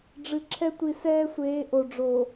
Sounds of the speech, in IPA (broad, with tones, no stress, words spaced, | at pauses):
ɖ͡ʐɨ˨ǁʰɛ˦ tʷi˨sɛː˦sʷeː˨˦ ʔo˨ ɖ͡ʐo˨